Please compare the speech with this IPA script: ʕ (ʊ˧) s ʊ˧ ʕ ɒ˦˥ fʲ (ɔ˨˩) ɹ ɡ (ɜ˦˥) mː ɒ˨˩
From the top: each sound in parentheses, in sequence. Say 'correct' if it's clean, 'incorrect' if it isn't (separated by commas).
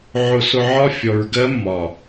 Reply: correct, incorrect, correct